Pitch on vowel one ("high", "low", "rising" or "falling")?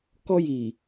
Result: high